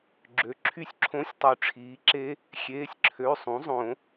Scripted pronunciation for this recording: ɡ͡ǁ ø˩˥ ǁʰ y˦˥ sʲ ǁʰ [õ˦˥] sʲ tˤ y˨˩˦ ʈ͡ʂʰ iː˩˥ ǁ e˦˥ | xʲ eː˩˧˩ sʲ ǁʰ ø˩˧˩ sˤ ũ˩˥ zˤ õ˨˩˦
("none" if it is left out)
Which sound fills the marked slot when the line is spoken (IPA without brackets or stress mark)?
õ˦˥